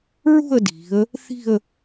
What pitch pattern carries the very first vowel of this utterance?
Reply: falling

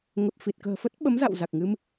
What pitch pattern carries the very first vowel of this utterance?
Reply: low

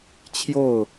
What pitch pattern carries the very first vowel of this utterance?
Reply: falling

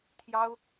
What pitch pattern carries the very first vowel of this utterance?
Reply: high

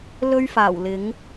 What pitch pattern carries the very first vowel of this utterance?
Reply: high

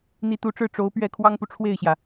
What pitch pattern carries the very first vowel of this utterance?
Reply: rising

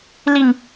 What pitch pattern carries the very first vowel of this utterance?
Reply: low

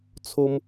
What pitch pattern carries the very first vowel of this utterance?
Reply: high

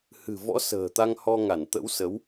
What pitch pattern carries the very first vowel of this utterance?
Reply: low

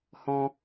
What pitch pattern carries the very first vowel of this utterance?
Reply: high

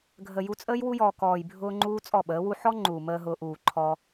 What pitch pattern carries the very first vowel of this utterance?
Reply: low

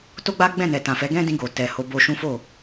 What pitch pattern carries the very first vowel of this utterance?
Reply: high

